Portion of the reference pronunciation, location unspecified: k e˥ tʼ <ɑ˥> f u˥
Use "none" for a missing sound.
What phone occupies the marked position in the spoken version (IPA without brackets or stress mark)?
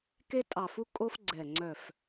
ɑ˧˩